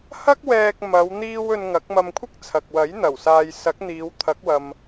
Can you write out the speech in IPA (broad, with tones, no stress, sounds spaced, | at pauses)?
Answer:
h ɐ˥ k̚ w ɛː˧ k̚ m ɐ˨˧ w n̪ iː˧ w ɵ˧ n ŋ ɐ˨˥ k̚ m ɐ˧ m kʷʰ ɪ˥ k̚ t͡sʰ ɐ˨ k̚ w ɐ˨˥ j n̪ ɐ˨˩ w s aː˨ j s ɐ˨˥ k̚ n̪ iː˨˧ w t̪ʰ ɐ˨˥ k̚ w ɐ˨ m